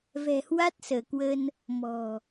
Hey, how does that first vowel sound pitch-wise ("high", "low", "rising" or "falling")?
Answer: low